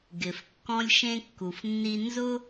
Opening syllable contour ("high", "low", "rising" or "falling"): low